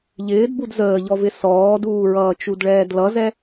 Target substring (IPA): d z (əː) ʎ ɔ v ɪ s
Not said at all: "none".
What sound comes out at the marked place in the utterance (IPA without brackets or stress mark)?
əː